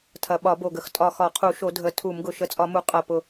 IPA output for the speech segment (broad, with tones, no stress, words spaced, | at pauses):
tʰɐ˨˩ɓɒ˧˩˧bo˨˩ɡə˨˩x tʼɒ˨˩ xɒ˧˩˧qʰu˧˩˧ʃo˧˩˧ dʱə˨˩ tʰu˧˩˧mɡʊ˨˩ ʃə˧˩˧t͡sʼɒ˧˩˧mu˨˩ qʼɐ˨˩pʊ˨˩